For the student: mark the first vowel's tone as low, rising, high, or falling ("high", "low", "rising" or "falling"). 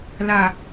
low